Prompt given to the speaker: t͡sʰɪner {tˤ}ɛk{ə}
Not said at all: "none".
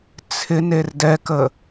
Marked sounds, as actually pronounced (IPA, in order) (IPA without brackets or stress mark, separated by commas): d, ə